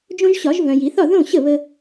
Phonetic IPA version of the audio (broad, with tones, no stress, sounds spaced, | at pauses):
d͡ʒ õ˦ ʒ ɕ ɒ˨˩˦ ʒ v œ̃˨ j i˨˩˦ θ ɒ˥˨ ð õ˥˨ ɕ ə˥˨ β ə˦